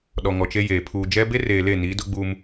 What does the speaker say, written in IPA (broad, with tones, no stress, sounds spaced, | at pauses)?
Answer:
ɗ ɔ˨ ŋ ɔ˨ t͡ʃ e˦ j eː˨ pʰ uː˨ d͡ʒ ɛ˦ b e˦ r eː˨ l e˦˨ n i˨˦ d ʊ˦ ɡ͡b uː˦ m